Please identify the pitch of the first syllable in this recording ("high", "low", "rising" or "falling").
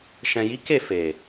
low